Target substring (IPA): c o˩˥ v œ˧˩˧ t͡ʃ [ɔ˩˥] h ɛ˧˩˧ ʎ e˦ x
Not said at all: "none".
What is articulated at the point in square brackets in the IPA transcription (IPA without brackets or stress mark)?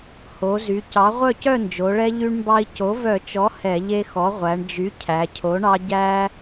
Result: ɔ˩˥